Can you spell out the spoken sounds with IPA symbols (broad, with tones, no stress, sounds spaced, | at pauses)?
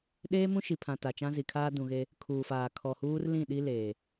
ɗ eː˦ m ũ˦ ʃ i˨ pʰ ã˨ t a˨ t͡ʃ ã˦ z i˨ kʰ aː˦ d ũ˨ ɣ e˦ | kʰ uː˨ f aː˨ kʰ ɔ˨ h uː˦ r l ĩ˦˨ ɗ i˦ l eː˨